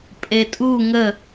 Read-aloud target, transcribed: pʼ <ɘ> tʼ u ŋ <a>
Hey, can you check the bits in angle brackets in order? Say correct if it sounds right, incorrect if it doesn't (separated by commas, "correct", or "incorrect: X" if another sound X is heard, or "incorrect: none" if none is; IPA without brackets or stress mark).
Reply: incorrect: e, incorrect: ə